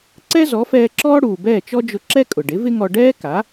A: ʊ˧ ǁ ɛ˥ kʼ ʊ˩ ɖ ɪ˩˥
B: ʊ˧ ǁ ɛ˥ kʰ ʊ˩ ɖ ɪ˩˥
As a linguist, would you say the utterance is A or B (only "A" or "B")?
A